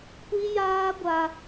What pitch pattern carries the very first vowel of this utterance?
high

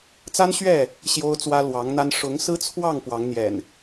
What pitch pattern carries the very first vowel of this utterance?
high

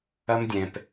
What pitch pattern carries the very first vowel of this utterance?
high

